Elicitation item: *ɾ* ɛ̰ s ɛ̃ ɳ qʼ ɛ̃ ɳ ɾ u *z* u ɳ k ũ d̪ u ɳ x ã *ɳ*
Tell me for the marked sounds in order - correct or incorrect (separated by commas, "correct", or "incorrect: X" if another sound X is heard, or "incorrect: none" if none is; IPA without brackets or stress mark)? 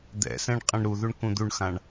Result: incorrect: d̪, incorrect: ð, correct